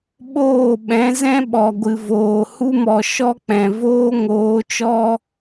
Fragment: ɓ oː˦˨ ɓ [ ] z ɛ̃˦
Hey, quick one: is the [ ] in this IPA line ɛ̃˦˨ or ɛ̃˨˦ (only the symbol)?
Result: ɛ̃˨˦